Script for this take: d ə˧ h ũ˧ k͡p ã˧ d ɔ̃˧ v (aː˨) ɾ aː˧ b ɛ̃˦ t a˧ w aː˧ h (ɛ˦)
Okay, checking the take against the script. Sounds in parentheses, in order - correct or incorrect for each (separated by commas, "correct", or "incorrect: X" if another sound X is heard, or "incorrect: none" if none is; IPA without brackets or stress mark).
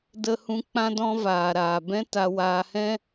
incorrect: aː˧, incorrect: ɛ̃˦